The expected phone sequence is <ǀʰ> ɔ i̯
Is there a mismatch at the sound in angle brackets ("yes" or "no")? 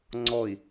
yes